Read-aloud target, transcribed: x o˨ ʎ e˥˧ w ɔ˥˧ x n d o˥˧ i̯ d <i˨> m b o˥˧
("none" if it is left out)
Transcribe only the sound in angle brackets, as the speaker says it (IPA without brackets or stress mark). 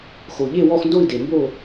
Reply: e˨